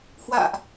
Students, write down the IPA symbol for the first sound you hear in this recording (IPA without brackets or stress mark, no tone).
h